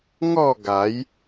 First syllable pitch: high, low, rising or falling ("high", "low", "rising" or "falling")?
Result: falling